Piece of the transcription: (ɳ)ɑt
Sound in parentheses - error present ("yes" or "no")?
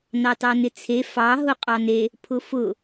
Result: yes